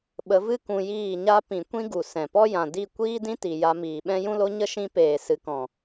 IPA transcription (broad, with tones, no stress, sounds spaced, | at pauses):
ɓ ə˨˦ v ɨ˦ k ũ˧ j iː˦˨ ɲ a˦ p ĩ˨ kʷ ĩ˦ ɡ u˨ s ɛ̃˨ p ɔ˦ j ã˨ d i˦˨ kʷ iː˦ d ĩ˦ t i˨ j a˧ m iː˨ ɓ ɛ̃˦ j ũ˦ l o˦ ɲ ə˦ ʃ ĩ˦ p eː˨ s ɨ˨ k ɔ̃˨